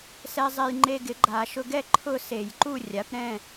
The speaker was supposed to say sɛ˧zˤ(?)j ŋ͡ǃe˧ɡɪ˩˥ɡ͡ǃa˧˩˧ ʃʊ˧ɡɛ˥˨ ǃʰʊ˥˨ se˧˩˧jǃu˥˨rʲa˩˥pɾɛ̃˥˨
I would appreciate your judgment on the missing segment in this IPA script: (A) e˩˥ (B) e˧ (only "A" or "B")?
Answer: B